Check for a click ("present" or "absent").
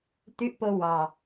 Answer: absent